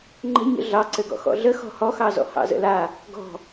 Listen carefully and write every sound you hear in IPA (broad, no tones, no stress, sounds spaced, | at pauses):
ŋ͡ǃ ə̤ ɲ ə̰ ɮ ɑ ǀ ɘ ɡ ɔ̰ x ɔ̰ ɮ ə x ɔ̤ h ɔ x ɑ z ɔ̰ h ɑ̰ z ə̰ l a | ɡ ɔ̤